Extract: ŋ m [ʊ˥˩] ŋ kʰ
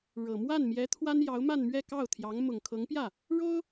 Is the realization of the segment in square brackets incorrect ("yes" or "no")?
yes